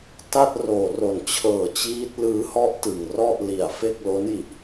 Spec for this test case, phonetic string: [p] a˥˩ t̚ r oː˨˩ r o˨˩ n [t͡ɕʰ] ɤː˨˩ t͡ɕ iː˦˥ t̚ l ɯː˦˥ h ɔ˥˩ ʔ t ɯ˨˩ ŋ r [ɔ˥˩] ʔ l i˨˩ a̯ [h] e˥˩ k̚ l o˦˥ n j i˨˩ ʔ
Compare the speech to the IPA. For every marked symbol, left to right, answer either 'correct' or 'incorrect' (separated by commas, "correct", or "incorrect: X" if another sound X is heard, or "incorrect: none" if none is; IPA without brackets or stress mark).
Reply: incorrect: t, correct, correct, incorrect: f